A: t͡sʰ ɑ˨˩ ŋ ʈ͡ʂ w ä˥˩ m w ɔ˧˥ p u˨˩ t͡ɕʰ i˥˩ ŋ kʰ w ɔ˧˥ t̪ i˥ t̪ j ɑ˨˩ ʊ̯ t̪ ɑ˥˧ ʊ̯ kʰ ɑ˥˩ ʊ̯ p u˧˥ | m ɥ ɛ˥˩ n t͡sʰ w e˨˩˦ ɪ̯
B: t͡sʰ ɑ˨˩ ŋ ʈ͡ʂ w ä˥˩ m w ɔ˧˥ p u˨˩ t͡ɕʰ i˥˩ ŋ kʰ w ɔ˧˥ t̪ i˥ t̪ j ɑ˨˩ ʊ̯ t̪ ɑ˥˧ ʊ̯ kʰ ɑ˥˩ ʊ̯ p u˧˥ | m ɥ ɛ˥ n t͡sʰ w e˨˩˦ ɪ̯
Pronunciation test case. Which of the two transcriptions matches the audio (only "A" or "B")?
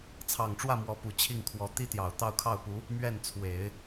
A